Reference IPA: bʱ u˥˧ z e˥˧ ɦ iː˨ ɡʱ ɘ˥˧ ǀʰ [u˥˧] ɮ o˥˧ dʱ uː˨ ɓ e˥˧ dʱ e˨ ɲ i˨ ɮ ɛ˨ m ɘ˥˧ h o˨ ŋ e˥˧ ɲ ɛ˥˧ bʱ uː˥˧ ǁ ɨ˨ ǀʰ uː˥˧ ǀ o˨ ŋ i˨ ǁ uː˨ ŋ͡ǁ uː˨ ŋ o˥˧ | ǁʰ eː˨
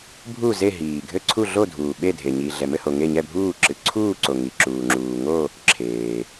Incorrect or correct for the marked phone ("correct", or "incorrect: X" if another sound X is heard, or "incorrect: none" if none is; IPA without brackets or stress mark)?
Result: correct